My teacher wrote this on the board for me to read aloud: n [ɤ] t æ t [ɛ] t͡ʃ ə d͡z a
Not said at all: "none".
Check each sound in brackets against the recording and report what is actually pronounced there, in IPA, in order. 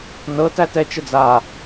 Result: ɤ, ɛ

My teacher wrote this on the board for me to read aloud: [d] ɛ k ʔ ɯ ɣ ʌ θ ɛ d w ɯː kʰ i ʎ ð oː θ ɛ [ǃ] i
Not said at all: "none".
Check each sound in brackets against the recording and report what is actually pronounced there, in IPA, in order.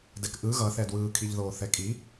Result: d, kʼ

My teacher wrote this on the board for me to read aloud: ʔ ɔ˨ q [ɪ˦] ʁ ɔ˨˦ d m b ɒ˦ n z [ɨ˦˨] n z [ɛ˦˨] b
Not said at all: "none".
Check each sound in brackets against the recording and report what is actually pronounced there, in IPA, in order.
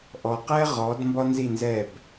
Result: ɛ˦, i˦˨, ɛ˦˨

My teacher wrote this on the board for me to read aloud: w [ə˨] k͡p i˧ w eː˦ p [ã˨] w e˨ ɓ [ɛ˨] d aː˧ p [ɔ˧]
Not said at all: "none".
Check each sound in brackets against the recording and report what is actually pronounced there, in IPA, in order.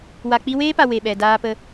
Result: a˨, a˨, ɛ˨, ə˧

